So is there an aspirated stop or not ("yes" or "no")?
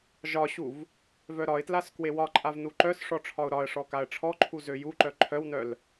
yes